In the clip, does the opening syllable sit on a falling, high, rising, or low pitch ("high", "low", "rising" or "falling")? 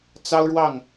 high